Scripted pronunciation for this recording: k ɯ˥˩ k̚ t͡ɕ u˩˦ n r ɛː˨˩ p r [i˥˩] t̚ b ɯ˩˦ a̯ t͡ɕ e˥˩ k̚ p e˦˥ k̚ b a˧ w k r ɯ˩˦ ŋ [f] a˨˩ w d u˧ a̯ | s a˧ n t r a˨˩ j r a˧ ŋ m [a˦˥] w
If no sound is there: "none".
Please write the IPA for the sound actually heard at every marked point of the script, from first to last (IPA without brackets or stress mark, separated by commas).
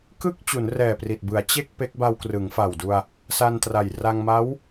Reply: i˨˩, f, a˦˥